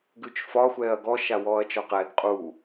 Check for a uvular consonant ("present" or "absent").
present